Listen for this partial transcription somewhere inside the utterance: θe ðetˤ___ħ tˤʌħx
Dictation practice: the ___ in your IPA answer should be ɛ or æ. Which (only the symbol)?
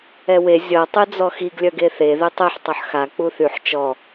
ɛ